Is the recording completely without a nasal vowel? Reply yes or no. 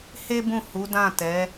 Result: no